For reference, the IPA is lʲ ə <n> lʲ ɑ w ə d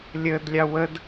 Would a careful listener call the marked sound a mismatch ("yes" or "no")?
yes